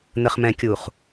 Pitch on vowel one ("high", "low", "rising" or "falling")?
low